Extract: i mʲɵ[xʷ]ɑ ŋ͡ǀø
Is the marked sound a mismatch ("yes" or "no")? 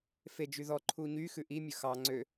yes